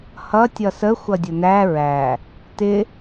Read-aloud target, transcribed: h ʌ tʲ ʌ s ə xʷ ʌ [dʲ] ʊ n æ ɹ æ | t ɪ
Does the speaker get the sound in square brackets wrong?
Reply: no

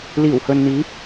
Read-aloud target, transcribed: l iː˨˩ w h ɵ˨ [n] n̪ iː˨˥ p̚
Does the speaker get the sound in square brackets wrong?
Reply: no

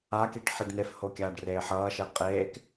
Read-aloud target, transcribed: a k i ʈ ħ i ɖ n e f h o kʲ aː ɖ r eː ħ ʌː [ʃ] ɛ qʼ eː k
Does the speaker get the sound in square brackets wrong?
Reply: no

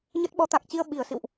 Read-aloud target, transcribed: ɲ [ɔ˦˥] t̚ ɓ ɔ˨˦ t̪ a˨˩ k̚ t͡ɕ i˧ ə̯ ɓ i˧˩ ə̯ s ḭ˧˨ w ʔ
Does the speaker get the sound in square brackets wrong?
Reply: yes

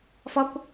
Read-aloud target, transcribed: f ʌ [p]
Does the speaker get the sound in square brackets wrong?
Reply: yes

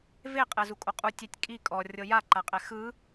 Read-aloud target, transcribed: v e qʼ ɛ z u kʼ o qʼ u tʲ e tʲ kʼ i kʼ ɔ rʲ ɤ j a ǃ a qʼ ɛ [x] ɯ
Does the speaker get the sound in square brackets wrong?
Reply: no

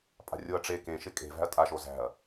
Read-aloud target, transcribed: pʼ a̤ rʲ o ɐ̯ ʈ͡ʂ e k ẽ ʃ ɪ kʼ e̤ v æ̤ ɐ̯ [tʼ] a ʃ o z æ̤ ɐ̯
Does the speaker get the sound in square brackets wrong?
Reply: no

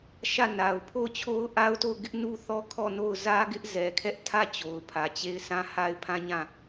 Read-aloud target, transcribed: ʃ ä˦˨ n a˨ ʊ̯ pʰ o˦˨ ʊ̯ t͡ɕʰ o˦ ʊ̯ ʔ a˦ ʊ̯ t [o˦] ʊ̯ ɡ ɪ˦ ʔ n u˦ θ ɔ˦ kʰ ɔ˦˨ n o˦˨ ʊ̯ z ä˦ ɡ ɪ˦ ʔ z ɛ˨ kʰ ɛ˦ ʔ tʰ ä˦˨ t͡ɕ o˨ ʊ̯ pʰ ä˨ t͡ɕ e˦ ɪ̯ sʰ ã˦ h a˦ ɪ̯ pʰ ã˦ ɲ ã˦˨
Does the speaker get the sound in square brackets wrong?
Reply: yes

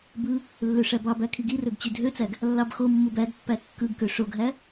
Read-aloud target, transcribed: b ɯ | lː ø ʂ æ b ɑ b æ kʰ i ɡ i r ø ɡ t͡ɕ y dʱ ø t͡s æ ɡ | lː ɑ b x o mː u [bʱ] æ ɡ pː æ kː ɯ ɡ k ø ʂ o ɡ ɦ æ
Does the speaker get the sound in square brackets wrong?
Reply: yes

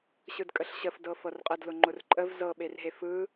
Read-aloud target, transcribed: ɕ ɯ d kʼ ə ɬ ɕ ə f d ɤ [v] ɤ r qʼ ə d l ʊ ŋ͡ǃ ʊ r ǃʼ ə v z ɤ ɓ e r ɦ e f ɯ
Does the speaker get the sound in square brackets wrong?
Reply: yes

